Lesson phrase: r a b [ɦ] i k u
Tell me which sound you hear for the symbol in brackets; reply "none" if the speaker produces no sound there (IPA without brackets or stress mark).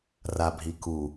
ɦ